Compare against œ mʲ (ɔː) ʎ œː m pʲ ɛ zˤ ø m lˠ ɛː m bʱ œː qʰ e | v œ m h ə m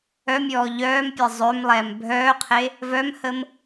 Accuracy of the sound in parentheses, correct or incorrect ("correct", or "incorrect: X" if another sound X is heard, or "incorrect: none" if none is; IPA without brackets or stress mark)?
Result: correct